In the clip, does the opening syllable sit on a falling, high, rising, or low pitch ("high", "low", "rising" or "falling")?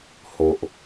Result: low